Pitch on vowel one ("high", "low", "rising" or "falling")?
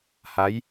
rising